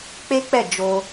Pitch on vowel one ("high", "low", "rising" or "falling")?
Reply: high